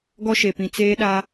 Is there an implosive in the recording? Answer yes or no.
yes